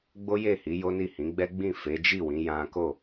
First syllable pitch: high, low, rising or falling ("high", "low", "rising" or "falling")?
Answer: high